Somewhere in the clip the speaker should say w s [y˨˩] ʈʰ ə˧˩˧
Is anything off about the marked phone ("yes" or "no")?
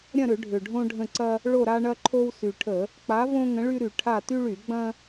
no